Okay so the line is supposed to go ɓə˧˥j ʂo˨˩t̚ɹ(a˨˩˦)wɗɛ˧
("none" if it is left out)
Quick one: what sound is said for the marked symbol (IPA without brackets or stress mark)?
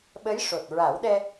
a˨˩˦